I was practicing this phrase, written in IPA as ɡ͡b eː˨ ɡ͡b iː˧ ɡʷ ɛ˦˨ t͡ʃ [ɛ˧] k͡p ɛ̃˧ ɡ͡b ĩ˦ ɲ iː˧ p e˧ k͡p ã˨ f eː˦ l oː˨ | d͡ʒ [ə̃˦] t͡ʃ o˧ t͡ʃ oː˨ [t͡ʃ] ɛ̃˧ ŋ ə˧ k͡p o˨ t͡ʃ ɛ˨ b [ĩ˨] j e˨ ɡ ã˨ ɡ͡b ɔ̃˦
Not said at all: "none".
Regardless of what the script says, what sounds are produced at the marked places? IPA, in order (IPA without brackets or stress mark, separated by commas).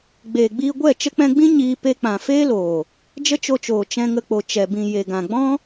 ə˧, ə˦, t͡ʃ, ĩ˨